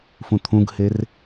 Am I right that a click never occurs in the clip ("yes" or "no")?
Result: yes